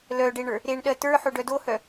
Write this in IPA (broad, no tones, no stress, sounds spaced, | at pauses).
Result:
l œ ɖ e ɳ ə˞ | ɾ e ɳ ɗ ɜ t ə˞ ħ o ɖ œ d o h œ